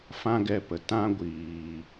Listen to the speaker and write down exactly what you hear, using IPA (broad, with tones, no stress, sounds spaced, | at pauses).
f ã˦ ɡ ɛ˧ p ə˨ t ã˦ ɡʷ iː˨